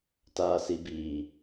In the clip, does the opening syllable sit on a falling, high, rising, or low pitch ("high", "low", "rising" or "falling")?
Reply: low